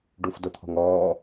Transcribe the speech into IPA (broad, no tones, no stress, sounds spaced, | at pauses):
ɖ u f d ʊ t̪ʰ ɔ̤ ŋ ɔː